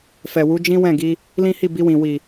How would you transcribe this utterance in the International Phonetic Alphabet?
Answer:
f ɛ˨ w u˨˦ d͡ʒ ĩ˦ w ɛ̃˦˨ ɡ i˧ | l ĩ˦ h i˦˨ b i˧ w ĩ˨ w i˨

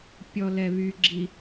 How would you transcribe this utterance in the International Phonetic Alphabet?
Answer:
pʲ ɔ l ɛ β y ɡ͡ǁ i

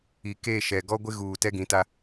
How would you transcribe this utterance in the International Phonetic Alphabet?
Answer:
i˨ k e˦˨ ʃ ɛ˨ ɡ ɔ˦ ɡʷ ɪ˦ ɣ uː˨ t ɛ˦ ɡ ĩ˨˦ t a˦

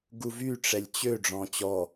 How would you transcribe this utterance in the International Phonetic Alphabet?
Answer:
ɡ u v y ʈ͡ʂ ɛ lʲ t͡ɕ ø ɖ͡ʐ ɔ̃ t͡ɕ ɔ

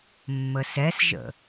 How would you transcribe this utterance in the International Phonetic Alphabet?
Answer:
mː ə s ɛ s ʒ ə̰

